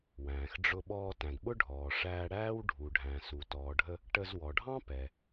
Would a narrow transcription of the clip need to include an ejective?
no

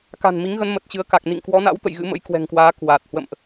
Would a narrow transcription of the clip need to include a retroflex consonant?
no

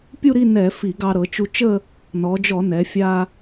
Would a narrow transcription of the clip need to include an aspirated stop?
no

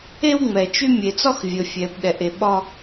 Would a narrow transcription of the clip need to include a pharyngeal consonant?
no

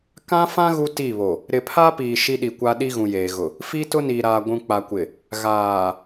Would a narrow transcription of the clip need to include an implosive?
yes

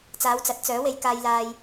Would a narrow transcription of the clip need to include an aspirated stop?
no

